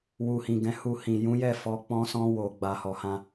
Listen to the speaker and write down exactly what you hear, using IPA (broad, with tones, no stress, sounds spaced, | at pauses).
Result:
w u˨ h ĩ˨ ɡ ɛ̃˨˦ h u˧ h ĩ˨ j ũ˨˦ j ɛ˦˨ f ɔ˧ k͡p ɔ̃˧ s ɔ̃˧ w o˨ ɡ͡b a˨ h ɔ˨ h ã˧